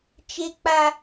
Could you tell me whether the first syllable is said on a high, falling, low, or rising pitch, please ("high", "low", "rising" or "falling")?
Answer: high